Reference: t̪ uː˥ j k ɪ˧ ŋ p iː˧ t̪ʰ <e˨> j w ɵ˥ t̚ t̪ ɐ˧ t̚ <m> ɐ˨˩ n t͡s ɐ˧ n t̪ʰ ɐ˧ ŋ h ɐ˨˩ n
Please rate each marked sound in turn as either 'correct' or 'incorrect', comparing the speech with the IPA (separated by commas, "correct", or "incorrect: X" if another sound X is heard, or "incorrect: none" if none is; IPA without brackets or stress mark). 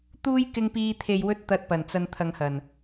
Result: correct, incorrect: p